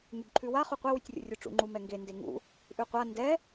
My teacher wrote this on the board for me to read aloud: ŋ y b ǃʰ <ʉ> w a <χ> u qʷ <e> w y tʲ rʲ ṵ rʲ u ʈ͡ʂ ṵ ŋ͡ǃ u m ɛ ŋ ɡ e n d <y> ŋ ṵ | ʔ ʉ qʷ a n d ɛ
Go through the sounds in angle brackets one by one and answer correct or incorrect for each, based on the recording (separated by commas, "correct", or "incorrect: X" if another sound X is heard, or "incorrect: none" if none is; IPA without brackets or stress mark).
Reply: correct, correct, incorrect: ɛ, incorrect: e